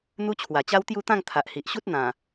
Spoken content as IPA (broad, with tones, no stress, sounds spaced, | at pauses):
n̪ u˦ t͡ɕʰ w a˨˩ t͡ɕ a˦ w t̪ j u˥˧ t̪ ã˥˧ ŋ t̪ʰ a˨ ʔ h i˨ ʔ ɕ u˦ t̚ n̪ ã˨˩